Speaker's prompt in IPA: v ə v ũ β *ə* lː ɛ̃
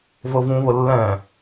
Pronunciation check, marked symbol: correct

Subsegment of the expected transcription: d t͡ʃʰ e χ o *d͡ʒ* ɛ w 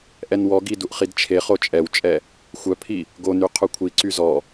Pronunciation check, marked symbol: incorrect: t͡ʃʼ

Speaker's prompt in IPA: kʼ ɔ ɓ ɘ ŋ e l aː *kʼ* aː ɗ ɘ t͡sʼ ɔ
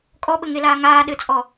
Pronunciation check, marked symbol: incorrect: ŋ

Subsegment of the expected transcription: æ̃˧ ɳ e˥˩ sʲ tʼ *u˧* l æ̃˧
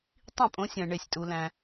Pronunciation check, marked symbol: correct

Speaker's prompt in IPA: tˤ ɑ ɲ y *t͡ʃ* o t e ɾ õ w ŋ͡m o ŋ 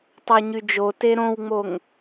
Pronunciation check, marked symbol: incorrect: d͡ʒ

